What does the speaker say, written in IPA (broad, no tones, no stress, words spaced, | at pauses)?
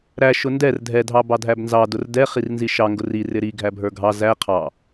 ɾæ ʃʊndɛr dʱɛ dʱɑbɑdʱæbnzɑ dʊrdɛ χirnziʃɑ ŋɡʊri rɪɾi ɡʱæbʱə˞ɡʱɑ zæ qʰɑ